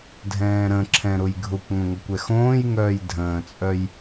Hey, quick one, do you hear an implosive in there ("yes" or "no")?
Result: no